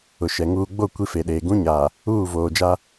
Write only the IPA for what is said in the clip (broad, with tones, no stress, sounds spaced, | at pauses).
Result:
ʊ˨ ʃ ɛ˨ ŋ uː˨ ɡ͡b o˦˨ kʷ i˦ f e˨ ɗ eː˨ ɡ ũ˦ ɲ aː˨ | uː˦˨ v oː˨ d͡ʒ a˦